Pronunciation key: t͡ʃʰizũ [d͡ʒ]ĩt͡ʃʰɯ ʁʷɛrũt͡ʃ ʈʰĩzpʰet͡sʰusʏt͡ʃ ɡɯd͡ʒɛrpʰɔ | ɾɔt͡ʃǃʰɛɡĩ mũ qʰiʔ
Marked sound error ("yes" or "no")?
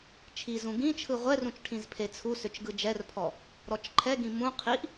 yes